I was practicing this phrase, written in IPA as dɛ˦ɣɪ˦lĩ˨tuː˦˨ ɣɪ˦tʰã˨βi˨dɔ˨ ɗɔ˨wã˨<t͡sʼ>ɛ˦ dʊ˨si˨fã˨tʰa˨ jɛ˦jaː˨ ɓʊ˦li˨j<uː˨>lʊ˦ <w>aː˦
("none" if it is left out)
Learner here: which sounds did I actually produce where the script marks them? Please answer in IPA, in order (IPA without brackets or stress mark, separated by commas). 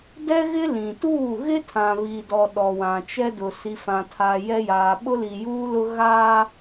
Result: t͡ʃ, uː˦, ɣ